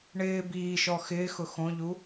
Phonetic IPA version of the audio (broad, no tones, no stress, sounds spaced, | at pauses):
ɳ ɪː b iː ʃ ɔ x ɪː x ʊ x õ ʎ u